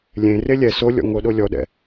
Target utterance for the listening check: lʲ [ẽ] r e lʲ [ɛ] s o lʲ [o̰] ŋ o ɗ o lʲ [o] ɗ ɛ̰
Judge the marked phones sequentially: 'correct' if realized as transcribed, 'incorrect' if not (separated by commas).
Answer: correct, correct, incorrect, incorrect